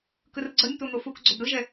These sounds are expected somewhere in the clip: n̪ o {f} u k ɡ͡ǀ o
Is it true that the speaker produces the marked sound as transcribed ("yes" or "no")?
yes